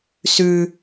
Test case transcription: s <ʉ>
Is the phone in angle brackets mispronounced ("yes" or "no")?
no